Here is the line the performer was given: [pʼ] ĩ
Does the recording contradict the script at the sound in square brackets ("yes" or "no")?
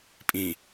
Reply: no